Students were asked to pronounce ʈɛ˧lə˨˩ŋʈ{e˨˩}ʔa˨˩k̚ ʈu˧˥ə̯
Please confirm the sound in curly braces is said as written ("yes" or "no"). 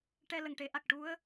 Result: no